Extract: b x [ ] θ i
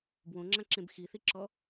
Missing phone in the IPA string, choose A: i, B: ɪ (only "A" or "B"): A